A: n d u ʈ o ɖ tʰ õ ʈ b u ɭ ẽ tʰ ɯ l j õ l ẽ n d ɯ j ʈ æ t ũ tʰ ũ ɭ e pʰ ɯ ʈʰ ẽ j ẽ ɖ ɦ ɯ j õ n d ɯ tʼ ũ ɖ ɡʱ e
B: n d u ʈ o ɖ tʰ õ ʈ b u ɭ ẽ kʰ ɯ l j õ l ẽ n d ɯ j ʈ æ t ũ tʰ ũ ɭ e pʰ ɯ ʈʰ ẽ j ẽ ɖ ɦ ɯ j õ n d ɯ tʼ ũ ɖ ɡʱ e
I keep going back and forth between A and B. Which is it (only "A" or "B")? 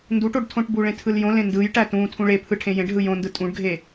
A